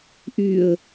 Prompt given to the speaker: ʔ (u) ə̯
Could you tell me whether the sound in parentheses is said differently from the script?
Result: yes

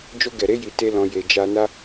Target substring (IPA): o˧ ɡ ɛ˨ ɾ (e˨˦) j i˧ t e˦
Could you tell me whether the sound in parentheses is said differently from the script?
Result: no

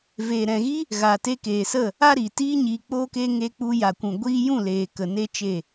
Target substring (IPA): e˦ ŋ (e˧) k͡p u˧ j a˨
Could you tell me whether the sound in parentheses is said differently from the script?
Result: no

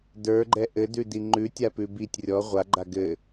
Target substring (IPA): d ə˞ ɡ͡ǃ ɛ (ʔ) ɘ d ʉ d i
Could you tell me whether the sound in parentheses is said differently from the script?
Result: no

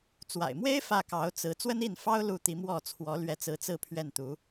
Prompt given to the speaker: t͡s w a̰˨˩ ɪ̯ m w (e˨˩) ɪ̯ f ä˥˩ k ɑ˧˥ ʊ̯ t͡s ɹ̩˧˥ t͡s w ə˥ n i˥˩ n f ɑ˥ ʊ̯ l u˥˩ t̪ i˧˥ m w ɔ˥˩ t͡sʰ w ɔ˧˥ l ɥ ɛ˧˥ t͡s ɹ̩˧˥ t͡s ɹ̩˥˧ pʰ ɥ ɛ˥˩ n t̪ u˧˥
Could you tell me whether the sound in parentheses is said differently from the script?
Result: yes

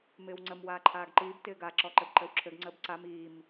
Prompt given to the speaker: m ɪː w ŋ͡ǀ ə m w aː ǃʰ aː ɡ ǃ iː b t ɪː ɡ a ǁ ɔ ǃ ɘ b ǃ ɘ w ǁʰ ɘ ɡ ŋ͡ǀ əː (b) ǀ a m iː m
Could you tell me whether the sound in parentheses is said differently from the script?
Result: no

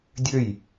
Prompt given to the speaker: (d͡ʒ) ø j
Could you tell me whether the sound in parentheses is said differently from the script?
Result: yes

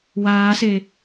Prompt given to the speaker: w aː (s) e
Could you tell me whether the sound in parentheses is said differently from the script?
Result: no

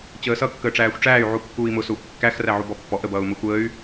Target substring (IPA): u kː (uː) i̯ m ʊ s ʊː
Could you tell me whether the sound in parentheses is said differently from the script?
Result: no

